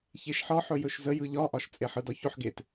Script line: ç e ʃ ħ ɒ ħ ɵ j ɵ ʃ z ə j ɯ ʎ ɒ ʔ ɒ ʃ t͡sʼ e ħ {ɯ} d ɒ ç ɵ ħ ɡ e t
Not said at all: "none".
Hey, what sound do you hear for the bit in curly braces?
ɯ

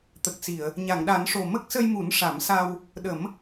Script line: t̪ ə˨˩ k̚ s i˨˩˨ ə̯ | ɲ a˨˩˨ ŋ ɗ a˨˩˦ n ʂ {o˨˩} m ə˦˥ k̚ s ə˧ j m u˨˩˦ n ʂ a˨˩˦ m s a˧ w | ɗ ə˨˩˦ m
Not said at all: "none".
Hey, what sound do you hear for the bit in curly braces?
o˨˩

